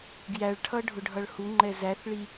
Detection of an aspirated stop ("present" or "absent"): present